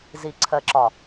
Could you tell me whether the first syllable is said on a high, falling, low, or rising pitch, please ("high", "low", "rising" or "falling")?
low